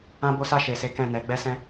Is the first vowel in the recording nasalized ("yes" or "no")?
yes